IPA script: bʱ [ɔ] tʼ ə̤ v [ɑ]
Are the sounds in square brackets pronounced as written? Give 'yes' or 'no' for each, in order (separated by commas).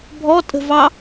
yes, yes